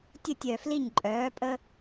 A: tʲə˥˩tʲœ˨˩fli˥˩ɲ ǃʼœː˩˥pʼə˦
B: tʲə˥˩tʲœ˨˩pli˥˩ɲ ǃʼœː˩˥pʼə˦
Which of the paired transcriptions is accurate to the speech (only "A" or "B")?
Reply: A